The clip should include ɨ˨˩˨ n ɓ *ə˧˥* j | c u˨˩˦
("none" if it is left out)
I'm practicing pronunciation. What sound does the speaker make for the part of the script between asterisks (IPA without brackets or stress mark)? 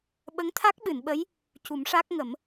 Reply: ə˧˥